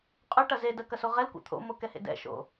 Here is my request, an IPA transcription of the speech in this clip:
qʼ ʉ ʈ ɐ z e d ɜ k ɐ s o ʁ ɛ l kʷ ḛ t̪ʰ o̰ m o k ɛ h ḛ d ɛ̰ ʃ o̰

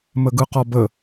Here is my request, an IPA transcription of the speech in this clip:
m ə ɡ ɯ q ɔ b ə

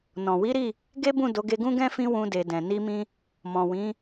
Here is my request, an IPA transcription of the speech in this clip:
n ɔ̃˨ w i˨˦ ɾ i˦˨ | ɡ e˦ b ũ˦˨ d o˨˦ ɡ e˧ ɡ ũ˦ ɡ ɛ̃˦ f ĩ˦ w ũ˧ d e˨ d ɛ̃˨ n i˧ m ĩ˧ | m ɔ̃˨ w ĩ˨˦

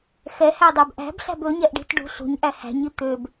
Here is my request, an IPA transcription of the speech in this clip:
x ɛ h æ dˤ æ b ʔ æ̤ b ɬ æ̤ b ɵ ɲ ɛ ʔ ɖ i̤ t ɖ ṳ ɬ ṳ ɲ ʔ æ h æ̤ ɲ i t̪ ø b

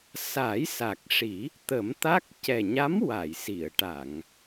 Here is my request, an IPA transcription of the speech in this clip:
s a˨˩˦ j s a˨˩ k̚ ʂ i˨˩˦ | t̪ ə˨˩˦ m t̪ a˦˥ k̚ c ɛ˨˩ ɲ a˧˥ m w a˨˩˨ j s i˨˩˨ ə̯ ʈ a˨˩˨ ŋ

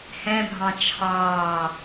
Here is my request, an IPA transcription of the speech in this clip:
h ɛ̃ bʱ ɑ̃ t͡ʃʰ ɑː

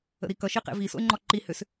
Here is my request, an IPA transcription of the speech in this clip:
ə̰ ɾ i k ʌ ʃ i q ḛ v i s o̰ e̯ ŋ͡ǃ ɔ ǃ i h ʏ s

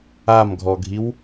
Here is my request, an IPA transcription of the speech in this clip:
a m ɡʱ ɔ ɡʱ i w

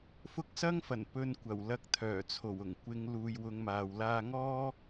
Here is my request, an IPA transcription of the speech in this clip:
f ʊ˧ k̚ s ɐ˥ ŋ f ɐ˨˩ n p ɵ˨ n kʷ ɐ˨˩ w l ɐ˨˥ k̚ t̪ʰ œː˨˩ t͡sʰ o˨˩ w ʊ˨˩ ŋ kʷ ɪ˨˧ ŋ l uː˨ j w ʊ˨˧ ŋ m aː˨ w l aː˧ ŋ ɔː˥

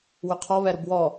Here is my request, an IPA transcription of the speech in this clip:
w ʏ qʰ ɔ β ɛ ɾ ʊ b w ɔ

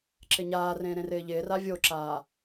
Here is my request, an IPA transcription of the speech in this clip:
ǁ ɪ ɲ aː r ẽː ɾ ẽ r ɪː ʎ ɪː r a vʲ o ǁ aː

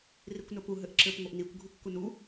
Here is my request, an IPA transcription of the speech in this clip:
r i kʷ n ə p u ɦ ɘ ʔ ǁ ɘ p ŋʷ ɐ ʔ n i kʷ ɡʱ u kː u n u

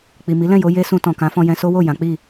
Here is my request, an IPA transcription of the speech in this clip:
k͡p i˨ m i˨˦ l ɛ̃˦˨ j o˧ j e˦ s ũ˧ t ɔ̃˨ k ã˨˦ f ɔ̃˧ j ɛ̃˧ s o˦ w o˦˨ j ã˨˦ k͡p i˦˨

